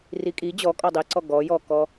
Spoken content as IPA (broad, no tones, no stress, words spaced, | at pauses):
rikʼi d͡ʑɔ kʼɔdˤiǀɔ ɡɔ jɔkɔ